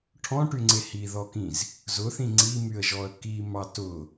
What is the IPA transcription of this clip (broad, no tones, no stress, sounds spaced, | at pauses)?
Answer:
ʈʰ ɔ̃ ʈ y ŋ͡ǀ e h i ð ɔ k ĩ z | z ʊ θ ĩ ŋ͡ǀ i m y ə̯ ʒ ɔ ə̯ k i m ɑ t ʊ